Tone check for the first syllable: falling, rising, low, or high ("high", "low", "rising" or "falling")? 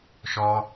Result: high